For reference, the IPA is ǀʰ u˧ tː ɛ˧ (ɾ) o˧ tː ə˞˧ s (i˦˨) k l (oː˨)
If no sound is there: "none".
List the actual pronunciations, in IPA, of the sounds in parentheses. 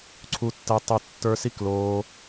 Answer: tˤ, i˦˨, oː˧

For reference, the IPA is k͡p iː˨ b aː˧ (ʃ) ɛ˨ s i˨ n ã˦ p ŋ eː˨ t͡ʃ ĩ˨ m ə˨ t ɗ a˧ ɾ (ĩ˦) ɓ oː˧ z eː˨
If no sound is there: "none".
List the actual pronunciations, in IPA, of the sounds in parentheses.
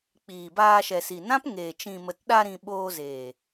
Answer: ʃ, ĩ˨

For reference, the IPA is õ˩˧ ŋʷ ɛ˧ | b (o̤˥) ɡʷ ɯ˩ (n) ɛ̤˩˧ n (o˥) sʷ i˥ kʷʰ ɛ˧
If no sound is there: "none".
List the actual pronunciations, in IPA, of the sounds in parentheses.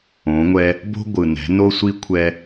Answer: o̤˥, n, o˥

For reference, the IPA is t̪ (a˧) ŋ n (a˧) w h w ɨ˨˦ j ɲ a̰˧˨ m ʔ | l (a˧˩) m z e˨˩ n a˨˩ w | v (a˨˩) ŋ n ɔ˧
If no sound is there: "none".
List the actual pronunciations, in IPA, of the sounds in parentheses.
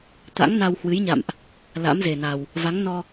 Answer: a̰˧˥, a˧, a̰˧˥, a˨˦

